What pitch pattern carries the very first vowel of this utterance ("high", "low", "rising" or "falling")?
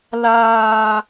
low